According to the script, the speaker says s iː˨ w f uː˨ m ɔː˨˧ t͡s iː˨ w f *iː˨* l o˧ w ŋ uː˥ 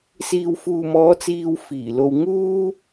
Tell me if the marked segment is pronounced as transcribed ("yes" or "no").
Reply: no